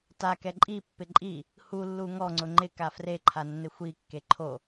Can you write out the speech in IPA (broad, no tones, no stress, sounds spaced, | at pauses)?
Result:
t a k ɛ ǃʼ i pː ɪ ǃʼ i | h u lː u ŋ ɔ ŋ͡ǀ ʊ ŋ͡ǃ ɪ k a f r e ǃʰ a nː ɪ xʷ i kː e ǃʰ o